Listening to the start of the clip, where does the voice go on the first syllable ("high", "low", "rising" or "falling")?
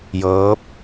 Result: rising